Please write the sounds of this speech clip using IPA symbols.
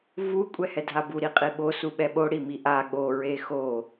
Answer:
vu kʷʼɛhɛdʱabu ɾiqʼiɓo suɓɛɓo ɽimiʔa ɠo ɹexo

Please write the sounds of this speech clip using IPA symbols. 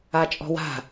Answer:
at͡ʃʼɔ̤wa̤

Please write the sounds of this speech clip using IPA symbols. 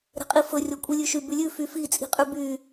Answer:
ɾɛ̤qʼifɵ rʲɔkʷʼilʲʉʃy bʉlʲʉ fyfi t͡sʼi̤qʼʉby

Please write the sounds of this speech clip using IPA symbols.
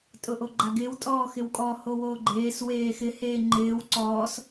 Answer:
tʼʊʔoɡ͡ǃaɡɪːw tʼɔːxɪwkʼɔ howoːɡ͡ǃeːs weːxɪ heːŋ͡ǃɪːw ǀɔːs

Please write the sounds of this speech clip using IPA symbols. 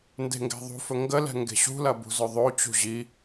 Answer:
nde̤ŋɡɛ̤ðˤṳfɵ ŋɡəlɛ̤ ŋɡe̤ɕṳlɐ bṳzɵðˤot͡ɕṳ ʑi

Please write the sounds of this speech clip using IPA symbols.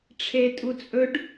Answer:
ʈ͡ʂʰe tʼut͡sʼɵɖ

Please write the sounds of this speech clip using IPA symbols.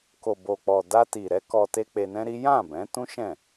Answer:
ko˨bo˨k͡pɔ˨ da˧ti˨ɾɛ˨˦ kɔ˧te˦ k͡pe˧nɛ̃˦ɾi˦ jã˦˨bɛ̃˨˦tũ˦ ʃɛ̃˦˨

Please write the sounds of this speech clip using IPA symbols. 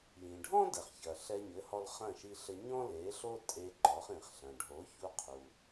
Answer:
jĩ˩ɖʱɔ̃˥dɛ˩χçɐ˩ ɬɛ˧ɲɘ˩˥hɔ˧l χɐ̃˥˩ʃi˧ɬɘ˧ ɲɔ̃˥le˩˥ ɬo˥ tʼe˧ ǃɔ˩˥χĩ˩χɬɐ̃˩ ɖʱo˩˥çu˧ qʰu˩

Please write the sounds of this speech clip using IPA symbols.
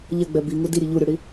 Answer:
ʎɛɡ͡bɛ biŋu diɾʲe ʎuɾʲoɽi

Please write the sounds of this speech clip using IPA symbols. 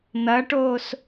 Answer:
n̪ɐʈoːs

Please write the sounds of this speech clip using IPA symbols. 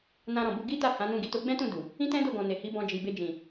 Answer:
nã˧ɾɔ̃˨bu˧ ɡi˦ta˦˨ hã˨˦nũ˦˨ ɡi˨to˧ɡ͡bɛ̃˦tũ˦˨ du˨ | ĩ˦tɛ̃˦do˦˨ɡɔ̃˨ ne˨hi˨˦bɔ̃˧ d͡ʒi˨be˧d͡ʒĩ˨

